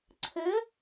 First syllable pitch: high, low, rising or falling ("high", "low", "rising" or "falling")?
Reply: rising